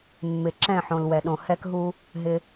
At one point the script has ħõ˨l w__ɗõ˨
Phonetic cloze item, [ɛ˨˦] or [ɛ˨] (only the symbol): ɛ˨